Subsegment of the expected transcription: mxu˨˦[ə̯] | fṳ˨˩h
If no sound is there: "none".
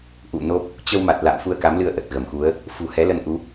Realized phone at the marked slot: ə̯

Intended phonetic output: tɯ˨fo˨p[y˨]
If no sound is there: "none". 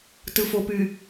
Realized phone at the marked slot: y˨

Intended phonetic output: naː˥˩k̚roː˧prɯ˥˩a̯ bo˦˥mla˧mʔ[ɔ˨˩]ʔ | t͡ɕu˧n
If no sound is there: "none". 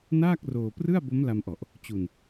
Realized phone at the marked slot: ɔ˨˩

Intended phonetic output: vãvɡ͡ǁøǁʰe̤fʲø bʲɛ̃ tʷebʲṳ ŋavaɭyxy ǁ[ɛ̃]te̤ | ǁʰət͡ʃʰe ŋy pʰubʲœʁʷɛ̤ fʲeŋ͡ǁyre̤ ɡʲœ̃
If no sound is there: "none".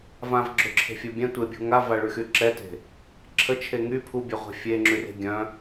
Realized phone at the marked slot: ɛ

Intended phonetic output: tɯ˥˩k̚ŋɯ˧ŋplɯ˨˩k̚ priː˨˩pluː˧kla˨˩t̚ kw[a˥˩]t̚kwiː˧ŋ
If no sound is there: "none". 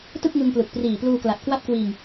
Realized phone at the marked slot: a˥˩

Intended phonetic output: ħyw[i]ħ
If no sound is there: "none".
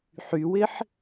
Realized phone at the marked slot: ɪ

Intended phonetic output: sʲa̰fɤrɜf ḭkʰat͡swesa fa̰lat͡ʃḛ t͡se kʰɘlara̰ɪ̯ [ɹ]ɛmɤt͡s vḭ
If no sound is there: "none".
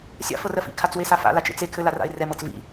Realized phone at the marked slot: r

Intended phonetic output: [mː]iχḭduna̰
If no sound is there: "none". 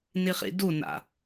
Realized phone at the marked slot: n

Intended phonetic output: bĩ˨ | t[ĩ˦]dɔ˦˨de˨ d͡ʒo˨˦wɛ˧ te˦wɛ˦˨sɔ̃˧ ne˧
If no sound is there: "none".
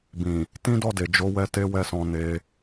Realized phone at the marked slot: ĩ˦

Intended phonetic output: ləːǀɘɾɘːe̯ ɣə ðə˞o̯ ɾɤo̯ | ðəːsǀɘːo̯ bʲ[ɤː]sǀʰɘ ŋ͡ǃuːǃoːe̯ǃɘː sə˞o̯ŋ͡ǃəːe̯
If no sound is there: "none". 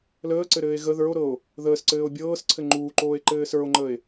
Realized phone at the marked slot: ɤː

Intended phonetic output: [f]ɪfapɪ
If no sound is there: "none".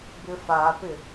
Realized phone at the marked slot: b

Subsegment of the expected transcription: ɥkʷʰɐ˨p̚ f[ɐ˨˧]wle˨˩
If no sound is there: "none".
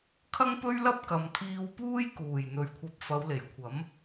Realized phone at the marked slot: ɐ˨˧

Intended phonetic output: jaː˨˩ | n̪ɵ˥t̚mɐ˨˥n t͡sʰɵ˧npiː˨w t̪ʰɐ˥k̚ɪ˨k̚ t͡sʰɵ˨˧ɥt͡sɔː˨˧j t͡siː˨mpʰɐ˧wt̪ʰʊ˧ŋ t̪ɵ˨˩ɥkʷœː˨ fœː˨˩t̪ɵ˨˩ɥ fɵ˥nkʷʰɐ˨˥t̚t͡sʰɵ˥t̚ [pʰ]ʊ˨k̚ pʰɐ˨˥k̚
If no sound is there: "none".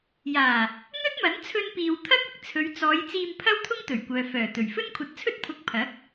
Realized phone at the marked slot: pʰ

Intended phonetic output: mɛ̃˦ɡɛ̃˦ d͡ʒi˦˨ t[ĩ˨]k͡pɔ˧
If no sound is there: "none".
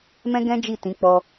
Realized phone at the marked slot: ĩ˨˦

